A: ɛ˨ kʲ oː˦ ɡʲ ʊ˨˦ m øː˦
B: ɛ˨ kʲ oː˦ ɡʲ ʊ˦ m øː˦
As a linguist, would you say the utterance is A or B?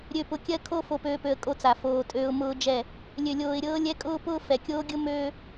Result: B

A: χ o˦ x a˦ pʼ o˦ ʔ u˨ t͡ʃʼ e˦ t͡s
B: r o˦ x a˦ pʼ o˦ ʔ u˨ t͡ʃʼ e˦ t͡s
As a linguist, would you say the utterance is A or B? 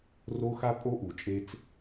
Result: B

